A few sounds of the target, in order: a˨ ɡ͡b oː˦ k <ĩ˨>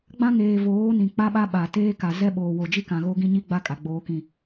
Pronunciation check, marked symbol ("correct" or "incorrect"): incorrect